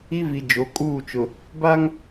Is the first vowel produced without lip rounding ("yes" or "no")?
yes